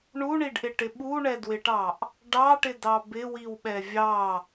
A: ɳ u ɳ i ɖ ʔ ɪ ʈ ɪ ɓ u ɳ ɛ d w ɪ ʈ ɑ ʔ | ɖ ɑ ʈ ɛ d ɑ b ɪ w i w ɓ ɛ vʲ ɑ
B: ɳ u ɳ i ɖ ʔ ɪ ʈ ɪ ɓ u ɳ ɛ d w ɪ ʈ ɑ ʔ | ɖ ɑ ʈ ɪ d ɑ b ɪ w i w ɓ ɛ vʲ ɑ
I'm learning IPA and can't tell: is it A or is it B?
B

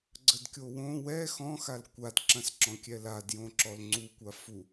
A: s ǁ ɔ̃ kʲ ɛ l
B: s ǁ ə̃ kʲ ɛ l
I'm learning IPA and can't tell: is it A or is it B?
A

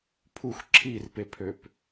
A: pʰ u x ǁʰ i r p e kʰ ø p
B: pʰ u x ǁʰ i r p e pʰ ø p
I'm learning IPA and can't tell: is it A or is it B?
B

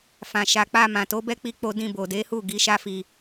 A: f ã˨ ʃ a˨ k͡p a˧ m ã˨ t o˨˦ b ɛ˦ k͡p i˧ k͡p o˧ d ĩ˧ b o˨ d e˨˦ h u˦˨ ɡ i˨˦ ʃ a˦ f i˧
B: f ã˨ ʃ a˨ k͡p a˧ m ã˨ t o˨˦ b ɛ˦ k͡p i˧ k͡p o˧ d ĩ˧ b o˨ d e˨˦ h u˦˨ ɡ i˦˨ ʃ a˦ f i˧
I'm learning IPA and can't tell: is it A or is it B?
A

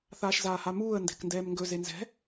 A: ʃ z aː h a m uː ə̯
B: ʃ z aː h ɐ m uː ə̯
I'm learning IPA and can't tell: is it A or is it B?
A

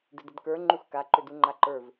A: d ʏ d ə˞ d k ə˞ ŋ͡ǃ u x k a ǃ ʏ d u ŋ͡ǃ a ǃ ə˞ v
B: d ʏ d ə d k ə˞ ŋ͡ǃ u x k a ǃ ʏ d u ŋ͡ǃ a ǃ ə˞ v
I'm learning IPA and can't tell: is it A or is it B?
B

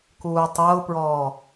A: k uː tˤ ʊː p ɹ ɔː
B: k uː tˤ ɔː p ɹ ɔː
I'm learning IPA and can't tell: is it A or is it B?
A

